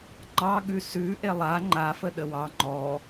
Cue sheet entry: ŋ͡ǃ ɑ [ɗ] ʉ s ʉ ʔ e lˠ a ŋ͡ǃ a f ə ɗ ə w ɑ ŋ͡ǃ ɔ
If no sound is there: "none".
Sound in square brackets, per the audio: ɠ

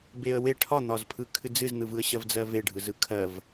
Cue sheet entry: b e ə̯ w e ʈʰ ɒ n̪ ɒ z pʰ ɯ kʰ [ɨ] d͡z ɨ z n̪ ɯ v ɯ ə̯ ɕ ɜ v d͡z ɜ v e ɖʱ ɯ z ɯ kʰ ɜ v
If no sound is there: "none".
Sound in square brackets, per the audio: ɨ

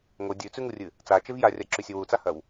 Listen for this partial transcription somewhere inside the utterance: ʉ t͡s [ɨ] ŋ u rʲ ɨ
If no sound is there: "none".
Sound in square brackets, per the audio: ʉ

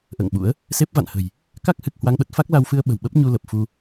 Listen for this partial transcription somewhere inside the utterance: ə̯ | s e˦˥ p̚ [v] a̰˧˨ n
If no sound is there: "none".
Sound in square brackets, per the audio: v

